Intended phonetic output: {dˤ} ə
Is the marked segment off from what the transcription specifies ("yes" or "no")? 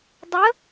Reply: no